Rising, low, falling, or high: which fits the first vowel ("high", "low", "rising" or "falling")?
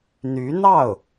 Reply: rising